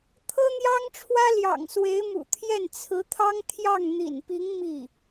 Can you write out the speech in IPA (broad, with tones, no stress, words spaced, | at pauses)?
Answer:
t̪ʰɤ˥n̪jɑ˥ŋʈ͡ʂʰwä˥ ljɑ̰˨˩ŋswe˧˥ɪ̯mṵ˨˩t̪ʰjɛ˥˩n t͡sʰɹ̩˧˥t̪ʰɑ˥ŋt̪ʰjɑ˥˩ŋ n̪ḭ˨˩npi˧˥ŋ mi˥˩